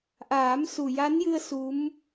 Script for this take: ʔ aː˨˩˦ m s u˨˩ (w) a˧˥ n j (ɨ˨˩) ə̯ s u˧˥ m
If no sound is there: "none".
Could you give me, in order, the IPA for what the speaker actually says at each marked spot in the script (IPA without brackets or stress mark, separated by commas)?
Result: j, ɨ˧